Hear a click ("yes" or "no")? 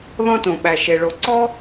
yes